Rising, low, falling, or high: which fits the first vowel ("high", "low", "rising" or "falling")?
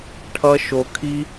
high